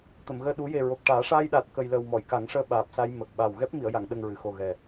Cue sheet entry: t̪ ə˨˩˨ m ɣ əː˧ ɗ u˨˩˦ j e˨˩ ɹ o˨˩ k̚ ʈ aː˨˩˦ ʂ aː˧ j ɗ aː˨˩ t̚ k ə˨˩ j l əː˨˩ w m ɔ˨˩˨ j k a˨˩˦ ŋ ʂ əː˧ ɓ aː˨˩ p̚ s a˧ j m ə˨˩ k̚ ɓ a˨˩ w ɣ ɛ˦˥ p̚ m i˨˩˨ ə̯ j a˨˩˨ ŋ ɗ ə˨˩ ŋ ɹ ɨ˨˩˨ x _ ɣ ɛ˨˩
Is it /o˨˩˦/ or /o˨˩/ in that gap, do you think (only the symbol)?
o˨˩